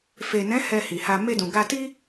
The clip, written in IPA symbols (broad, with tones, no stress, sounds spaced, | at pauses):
f e˨ n ɛ̃˨˦ h ɛ˧ h i˨ h a˧ m e˧ d ũ˨ ɡ a˧ t i˦